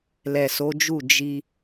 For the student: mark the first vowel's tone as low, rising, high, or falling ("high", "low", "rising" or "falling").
low